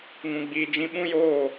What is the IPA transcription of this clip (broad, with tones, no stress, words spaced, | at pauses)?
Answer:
ŋũ˨ɡ͡biː˨d͡ʒĩ˧ ɓũ˦joː˦˨